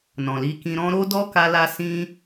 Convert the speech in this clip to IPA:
nɔ̃˨li˧kĩ˧ɾɔ̃˦ ɾo˦dɔ˦ ka˦la˦ sĩ˦

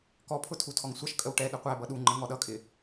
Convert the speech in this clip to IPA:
kɔpʰʊ tʰutʰɔŋsʷʌʃkʼəw ʈɛ ɗəqʷæbʌ ɗuŋ͡ǃə ŋɔɗʌkʼɪ

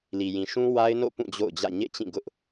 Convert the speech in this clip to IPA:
li˨jĩ˨ʃũ˦ wa˦ɪ̯no̰˦˨pũ˦˨ d͡ʑo̰˦˨ʊ̯ d͡ʑä̰˦˨ ɲḛ˦˨t͡ɕĩ˦˨ɡʊ˦ʔ

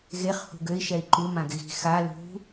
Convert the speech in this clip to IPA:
ɣeχ hṳɡøi̯ ʃɛi̯ǃu mãɡɣi̤ xa lṳ

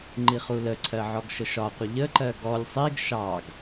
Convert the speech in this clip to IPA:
ŋ͡ǃiχuləǀʰɜ ʕɔɡʃəʃɒqʷə ʎəǃɜ ɡɔlʲ sˤiɡ ʃɑɡ

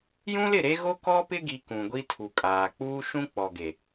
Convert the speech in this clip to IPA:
jũ˦lɪ˦˨ɾe˦ ɣo˦kɔ˦pɪ˦ɡi˨ kũ˨ɡʷi˦ tʰu˨kʼaː˨ k͡puː˦ʃũ˦k͡pɔ˨ɡe˨

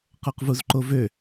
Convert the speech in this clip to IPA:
qoqvuzǃovø

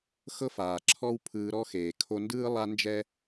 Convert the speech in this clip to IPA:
xɤ˦faː˨ǁʰɔ˦w pʰɯː˧ɾɔ˦xeː˨ kʰo˧ndɯː˦ lˠa˦nd͡ʒɛ˦

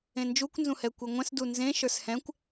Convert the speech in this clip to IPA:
ẽnd͡ʒukʷ nzũhɛkʷeŋʷɛ̃s dunzẽ ʃə˞shɛ̃kʷ

